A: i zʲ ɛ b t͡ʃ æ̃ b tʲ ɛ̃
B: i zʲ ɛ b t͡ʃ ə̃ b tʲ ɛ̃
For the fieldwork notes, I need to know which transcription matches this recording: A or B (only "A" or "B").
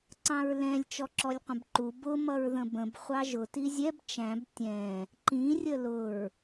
A